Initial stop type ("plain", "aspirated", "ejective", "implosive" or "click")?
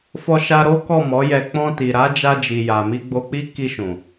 plain